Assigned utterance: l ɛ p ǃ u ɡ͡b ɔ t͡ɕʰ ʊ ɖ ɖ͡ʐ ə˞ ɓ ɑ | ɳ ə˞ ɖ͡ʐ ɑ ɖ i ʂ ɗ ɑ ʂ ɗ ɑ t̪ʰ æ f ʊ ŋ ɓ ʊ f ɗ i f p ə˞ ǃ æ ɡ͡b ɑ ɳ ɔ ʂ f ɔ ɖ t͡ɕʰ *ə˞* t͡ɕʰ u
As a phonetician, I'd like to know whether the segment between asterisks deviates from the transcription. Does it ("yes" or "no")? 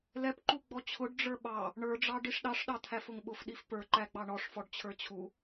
no